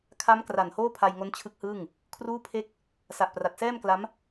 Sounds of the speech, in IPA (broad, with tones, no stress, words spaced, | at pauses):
kʰa˦˥m kra˨˩nhoː˥˩pʰa˧jŋo˦˥n t͡ɕʰɯ˦˥k̚hɯː˥˩ŋ | kʰruː˥˩pʰe˥˩k̚ | sa˨˩ʔpra˨˩t̚sɛː˥˩mkla˦˥m